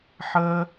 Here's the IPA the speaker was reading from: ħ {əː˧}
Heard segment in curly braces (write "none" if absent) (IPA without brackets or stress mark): əː˧